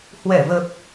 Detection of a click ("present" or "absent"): absent